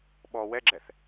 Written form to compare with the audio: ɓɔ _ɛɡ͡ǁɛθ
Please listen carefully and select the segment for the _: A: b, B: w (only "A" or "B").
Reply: B